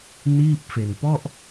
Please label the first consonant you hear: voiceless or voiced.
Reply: voiced